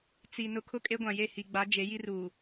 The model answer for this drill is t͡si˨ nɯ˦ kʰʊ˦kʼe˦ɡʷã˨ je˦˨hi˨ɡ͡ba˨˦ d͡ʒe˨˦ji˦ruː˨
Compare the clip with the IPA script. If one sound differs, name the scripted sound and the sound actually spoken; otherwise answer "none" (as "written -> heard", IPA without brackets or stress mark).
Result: ɯ˦ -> ʊ˦